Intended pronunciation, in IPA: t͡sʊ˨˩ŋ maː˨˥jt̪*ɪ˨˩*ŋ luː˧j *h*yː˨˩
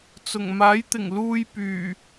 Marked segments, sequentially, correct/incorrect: correct, incorrect

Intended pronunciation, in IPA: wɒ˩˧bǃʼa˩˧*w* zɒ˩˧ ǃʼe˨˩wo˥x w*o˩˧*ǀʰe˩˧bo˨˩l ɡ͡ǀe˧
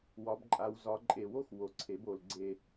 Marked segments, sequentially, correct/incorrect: correct, correct

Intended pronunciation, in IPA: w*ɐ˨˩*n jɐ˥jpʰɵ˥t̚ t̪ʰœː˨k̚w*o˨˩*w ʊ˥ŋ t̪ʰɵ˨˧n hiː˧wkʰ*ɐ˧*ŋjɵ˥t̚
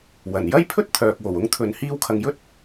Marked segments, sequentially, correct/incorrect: correct, correct, incorrect

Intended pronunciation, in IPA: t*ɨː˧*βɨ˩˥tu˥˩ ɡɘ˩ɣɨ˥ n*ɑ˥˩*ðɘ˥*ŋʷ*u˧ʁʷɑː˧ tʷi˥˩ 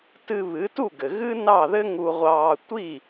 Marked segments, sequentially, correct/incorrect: incorrect, correct, incorrect

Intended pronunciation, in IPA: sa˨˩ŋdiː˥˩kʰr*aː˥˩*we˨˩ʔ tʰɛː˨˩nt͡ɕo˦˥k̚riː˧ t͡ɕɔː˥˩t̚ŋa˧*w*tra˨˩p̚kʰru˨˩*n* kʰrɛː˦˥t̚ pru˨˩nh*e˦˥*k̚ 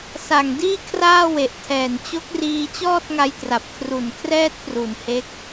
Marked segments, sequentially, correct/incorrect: correct, incorrect, correct, correct

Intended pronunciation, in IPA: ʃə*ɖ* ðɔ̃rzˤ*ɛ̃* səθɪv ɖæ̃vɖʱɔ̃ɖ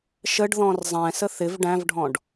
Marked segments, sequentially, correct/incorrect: correct, correct

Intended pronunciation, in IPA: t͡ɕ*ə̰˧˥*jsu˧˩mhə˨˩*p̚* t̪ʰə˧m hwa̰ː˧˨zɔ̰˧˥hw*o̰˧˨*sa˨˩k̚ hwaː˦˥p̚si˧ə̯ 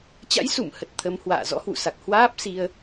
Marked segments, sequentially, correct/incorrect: incorrect, incorrect, incorrect

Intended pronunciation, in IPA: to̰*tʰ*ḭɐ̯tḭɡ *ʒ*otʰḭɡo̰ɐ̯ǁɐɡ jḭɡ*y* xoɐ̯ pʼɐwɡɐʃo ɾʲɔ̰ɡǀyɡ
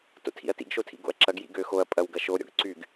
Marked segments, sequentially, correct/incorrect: correct, incorrect, incorrect

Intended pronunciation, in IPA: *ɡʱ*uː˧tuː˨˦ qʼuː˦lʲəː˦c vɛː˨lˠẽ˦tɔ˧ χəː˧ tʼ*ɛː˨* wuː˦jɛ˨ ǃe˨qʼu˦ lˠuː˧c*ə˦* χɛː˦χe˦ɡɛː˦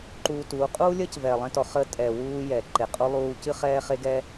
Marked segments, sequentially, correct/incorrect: incorrect, incorrect, incorrect

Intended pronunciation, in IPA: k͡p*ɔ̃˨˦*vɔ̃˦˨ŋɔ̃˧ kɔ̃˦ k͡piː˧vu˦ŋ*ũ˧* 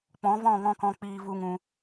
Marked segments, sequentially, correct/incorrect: correct, correct

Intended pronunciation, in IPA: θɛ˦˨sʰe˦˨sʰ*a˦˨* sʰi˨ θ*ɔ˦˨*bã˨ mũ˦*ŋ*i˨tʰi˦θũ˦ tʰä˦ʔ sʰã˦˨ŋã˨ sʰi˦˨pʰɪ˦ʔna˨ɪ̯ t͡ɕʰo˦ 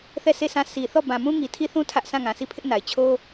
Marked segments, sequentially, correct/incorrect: incorrect, correct, correct

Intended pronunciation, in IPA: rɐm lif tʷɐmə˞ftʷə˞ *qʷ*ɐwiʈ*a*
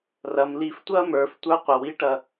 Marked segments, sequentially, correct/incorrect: correct, incorrect

